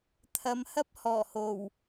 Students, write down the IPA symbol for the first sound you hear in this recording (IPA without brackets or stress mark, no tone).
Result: t̪ʰ